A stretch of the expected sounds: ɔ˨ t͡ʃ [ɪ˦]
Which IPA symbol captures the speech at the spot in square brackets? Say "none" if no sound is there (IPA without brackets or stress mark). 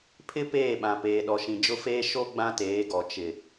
ɪ˨